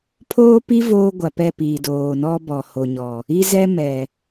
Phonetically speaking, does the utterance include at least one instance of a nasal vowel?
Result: no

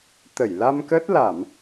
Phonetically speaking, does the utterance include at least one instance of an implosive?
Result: no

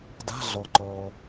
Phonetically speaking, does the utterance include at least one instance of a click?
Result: yes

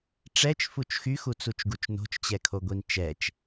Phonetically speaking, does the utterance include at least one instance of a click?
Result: no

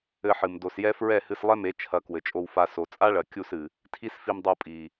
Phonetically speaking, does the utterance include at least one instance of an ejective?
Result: yes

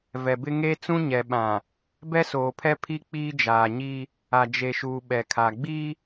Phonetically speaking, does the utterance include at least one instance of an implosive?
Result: yes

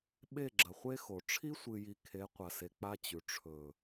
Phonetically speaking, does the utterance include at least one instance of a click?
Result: yes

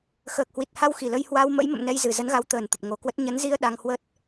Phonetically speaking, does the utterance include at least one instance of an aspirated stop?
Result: no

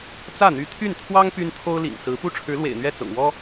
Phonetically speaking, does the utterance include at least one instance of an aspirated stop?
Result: yes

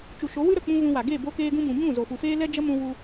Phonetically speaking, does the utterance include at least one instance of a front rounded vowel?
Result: no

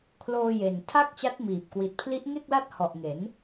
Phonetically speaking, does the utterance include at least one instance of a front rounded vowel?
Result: no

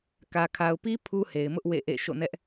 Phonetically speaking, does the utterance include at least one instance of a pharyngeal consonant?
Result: no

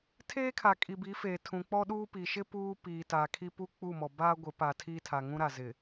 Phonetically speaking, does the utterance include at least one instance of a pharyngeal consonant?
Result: no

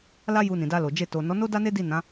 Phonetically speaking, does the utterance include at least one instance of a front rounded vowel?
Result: no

